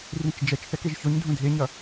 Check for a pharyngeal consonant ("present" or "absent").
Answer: absent